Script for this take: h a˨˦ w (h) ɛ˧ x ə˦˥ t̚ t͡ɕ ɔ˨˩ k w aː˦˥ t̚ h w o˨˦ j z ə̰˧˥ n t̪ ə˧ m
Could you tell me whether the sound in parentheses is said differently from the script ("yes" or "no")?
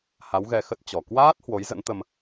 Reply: yes